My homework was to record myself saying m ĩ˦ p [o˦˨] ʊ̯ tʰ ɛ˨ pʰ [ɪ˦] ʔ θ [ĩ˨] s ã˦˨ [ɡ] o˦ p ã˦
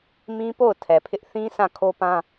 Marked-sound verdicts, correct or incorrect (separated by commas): correct, correct, incorrect, incorrect